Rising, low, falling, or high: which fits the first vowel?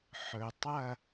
low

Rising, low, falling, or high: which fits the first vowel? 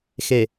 low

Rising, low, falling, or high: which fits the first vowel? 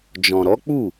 low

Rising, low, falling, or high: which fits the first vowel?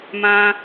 high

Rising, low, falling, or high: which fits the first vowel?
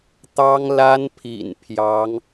high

